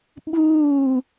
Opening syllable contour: falling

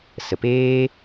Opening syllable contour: low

